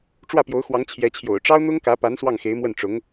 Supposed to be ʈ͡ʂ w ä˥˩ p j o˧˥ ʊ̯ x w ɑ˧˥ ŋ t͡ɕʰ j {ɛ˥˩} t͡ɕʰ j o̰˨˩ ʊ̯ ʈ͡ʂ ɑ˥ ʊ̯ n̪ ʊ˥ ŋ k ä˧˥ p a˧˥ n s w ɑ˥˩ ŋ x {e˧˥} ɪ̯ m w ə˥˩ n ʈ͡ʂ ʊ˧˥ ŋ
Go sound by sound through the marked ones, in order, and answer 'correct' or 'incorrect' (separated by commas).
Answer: incorrect, correct